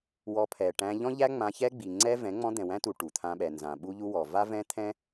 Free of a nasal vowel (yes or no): no